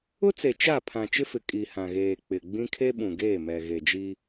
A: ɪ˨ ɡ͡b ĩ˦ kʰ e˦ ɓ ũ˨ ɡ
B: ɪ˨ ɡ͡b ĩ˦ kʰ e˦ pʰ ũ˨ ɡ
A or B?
A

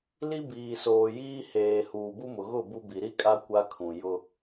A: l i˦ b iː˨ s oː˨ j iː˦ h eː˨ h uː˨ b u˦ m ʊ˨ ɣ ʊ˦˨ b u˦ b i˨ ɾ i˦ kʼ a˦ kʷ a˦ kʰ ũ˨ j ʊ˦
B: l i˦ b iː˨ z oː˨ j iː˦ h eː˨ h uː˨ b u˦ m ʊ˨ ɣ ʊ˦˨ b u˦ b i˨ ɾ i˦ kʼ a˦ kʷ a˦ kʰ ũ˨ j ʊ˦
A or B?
A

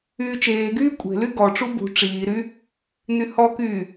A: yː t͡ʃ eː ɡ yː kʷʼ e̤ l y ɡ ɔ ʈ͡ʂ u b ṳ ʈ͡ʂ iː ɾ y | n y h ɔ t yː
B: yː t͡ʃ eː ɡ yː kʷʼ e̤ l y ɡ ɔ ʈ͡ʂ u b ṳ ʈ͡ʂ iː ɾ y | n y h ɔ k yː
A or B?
B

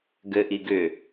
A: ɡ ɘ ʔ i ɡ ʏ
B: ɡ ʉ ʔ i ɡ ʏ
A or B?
A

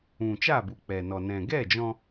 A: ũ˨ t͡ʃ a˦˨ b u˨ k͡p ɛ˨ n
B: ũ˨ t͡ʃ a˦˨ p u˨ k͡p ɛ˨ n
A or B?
A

